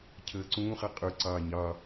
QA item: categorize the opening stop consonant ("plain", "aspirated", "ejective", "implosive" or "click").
aspirated